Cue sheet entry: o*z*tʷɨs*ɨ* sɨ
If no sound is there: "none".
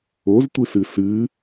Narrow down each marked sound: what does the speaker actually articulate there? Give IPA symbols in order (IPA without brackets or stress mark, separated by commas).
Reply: z, ɨ